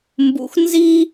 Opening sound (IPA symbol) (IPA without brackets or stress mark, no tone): m